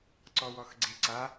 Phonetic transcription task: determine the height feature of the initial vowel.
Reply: mid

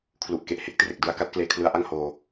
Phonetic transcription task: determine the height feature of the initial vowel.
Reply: high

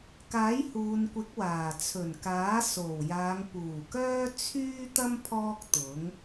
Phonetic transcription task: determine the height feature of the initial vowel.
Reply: low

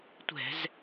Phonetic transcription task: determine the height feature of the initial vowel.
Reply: mid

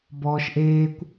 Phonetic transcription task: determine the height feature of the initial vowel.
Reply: mid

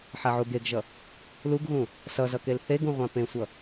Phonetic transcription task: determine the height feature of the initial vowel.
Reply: low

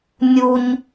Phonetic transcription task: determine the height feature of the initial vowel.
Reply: high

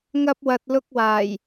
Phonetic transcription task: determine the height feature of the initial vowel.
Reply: low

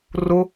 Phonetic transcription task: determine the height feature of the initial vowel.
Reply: high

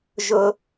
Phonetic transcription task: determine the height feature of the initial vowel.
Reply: high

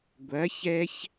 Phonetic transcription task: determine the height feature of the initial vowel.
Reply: low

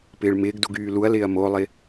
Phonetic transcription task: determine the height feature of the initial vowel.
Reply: high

